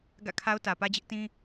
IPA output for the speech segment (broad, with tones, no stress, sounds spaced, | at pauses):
ɡ ä̰˦˨ kʰ a˦ ʊ̯ t ä˨ p ä˦ d͡ʑ ɪ˦ ʔ t ĩ˦